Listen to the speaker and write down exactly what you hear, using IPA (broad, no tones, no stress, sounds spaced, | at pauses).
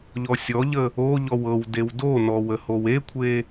ʎ ɔ sʲ ɔ ʎ ə | o ʎ ɔ w ɤ w d e w d o n ɔ w ə h o w e kʷʰ e